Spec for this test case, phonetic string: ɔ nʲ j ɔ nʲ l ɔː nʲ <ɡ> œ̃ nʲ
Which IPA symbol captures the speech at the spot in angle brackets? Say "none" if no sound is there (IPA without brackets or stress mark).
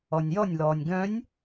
ɡ